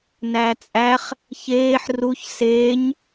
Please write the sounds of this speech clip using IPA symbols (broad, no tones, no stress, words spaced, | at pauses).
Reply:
næt͡sʼæχ | çeːħ ruç seːɲ